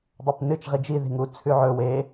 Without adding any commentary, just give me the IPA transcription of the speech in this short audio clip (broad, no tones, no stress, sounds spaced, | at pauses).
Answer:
dˤ ɵ p n ɨ t͡ʃ ʁ i d͡ʒ i ð i̤ ŋ u t͡sʰ ʉ ʕ ɵ w e